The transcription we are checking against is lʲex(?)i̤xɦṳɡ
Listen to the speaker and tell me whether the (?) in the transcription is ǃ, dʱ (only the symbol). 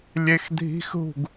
dʱ